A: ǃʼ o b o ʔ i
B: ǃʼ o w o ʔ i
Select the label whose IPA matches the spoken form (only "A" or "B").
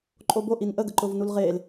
A